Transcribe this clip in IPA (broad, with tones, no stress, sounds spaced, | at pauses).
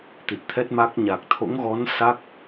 t̪ i˨˩ t̚ t̪ʰ ɛ˦˥ t̚ m a˦˥ k̚ ɲ a˨˩ k̚ t̪ʰ o̰˧˥ ŋ ɣ ɔ˨˦ n s a˦˥ k̚